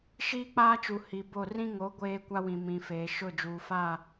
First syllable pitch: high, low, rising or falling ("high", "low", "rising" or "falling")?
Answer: high